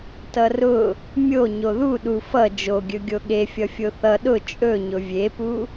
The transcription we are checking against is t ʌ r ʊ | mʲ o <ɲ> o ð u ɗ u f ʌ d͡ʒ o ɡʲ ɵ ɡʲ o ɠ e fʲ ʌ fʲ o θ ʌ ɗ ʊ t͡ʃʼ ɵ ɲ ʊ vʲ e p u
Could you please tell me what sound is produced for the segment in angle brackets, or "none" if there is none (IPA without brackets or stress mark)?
ɲ